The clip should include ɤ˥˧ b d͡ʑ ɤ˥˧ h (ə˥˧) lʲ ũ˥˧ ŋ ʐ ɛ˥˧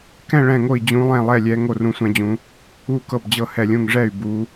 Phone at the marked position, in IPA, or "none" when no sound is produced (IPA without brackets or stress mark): ɛ˥˧